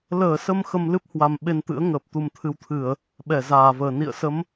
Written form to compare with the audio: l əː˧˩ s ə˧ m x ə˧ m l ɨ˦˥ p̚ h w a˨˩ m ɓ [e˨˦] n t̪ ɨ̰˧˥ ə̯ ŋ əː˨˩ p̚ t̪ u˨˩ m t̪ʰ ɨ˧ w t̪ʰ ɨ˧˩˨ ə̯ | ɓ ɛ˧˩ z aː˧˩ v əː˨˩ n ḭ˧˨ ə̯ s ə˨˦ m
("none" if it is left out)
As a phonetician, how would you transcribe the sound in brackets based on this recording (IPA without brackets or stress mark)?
e˧